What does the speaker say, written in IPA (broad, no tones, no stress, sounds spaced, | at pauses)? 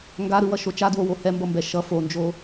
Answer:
ŋ ɡ a ɾ ɯ w ʌ ʃ o t͡ʃ a d w o w o h ɛ m b ʌ m b ɛ ʃ ʌ f o n d͡ʒ o